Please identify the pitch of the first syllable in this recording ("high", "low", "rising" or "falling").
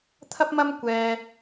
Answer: high